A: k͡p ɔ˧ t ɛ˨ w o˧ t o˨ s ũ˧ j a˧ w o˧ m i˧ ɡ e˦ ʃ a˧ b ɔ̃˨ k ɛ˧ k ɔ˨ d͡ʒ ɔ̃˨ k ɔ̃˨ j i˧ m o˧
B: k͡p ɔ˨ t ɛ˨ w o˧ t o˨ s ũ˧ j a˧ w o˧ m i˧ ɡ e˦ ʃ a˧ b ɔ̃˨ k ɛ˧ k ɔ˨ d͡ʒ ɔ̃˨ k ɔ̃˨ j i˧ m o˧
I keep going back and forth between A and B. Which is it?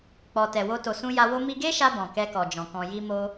B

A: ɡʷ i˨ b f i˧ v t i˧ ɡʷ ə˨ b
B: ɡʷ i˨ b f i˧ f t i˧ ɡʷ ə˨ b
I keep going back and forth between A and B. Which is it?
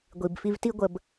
A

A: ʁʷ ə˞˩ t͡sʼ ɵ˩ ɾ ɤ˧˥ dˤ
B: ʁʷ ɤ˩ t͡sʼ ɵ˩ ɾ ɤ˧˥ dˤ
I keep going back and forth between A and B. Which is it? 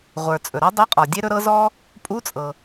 A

